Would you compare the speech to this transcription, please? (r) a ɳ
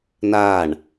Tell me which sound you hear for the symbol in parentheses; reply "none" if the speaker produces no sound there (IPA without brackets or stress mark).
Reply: n